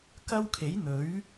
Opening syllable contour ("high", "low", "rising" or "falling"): high